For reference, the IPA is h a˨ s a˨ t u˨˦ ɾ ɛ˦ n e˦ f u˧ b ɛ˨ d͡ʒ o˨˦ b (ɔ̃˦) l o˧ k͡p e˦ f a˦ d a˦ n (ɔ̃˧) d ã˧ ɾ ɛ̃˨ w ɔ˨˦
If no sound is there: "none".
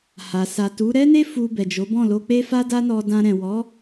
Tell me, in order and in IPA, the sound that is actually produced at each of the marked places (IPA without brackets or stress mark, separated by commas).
ɔ̃˦˨, ɔ˧